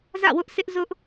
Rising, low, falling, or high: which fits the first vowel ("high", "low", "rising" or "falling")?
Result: falling